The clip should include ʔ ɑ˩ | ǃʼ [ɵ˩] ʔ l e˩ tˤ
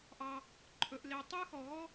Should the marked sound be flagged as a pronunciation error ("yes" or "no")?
no